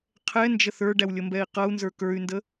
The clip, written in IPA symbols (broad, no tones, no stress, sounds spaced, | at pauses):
qʰ ɛ n d͡ʒ ə θ ə˞ ɖ æ w lʲ ə m b ɛ i̯ q ʌ u̯ n z ə˞ k ə˞ y̯ n d ə